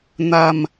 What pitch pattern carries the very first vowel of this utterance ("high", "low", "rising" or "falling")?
low